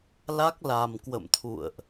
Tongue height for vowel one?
low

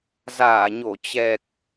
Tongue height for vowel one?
low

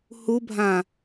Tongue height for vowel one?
high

